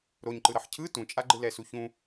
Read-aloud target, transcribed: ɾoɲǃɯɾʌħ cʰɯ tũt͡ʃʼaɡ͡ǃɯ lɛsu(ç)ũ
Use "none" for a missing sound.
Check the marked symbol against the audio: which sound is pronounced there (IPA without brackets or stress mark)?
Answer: ç